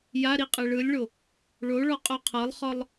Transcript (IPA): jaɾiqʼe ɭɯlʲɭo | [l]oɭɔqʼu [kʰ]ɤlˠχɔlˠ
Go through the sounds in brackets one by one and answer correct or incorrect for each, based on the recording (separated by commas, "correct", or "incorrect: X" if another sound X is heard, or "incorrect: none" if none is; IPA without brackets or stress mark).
incorrect: ɭ, incorrect: qʰ